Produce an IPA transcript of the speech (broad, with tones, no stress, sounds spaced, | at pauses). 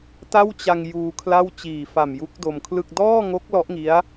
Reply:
t a˥˩ w t͡ɕ a˧ ŋ j uː˧ kʰ l a˥˩ w t͡ɕ iː˨˩ f a˨˩ m j u˦˥ k̚ d o˧ m kʰ l ɯ˥˩ k̚ d ɔː˥˩ ŋ o˦˥ k̚ l ɔ˦˥ ʔ ŋ i˦˥ a̯